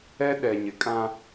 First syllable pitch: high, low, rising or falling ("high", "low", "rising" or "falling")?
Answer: high